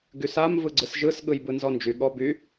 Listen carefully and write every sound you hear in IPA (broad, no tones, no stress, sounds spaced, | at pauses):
ɡ y s a m v ɯ ɡ͡ǀ ɯ s ʒ ɯ s ɠ ɯ j b ɯ n z ɔ n d͡ʒ y ɠ ɔ b y